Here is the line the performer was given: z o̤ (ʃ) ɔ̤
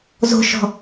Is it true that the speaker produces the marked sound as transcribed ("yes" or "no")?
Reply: yes